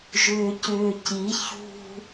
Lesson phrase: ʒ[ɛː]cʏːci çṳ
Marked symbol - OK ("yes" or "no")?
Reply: no